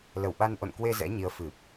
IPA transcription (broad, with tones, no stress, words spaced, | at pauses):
lə˧˩wɓa˧nʔo̰˧˨nkwe˧ zɛ̰˧˥ɲi˨˦ə̯ fɨ˨˩p̚